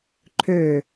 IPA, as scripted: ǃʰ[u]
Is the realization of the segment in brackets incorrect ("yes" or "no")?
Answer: yes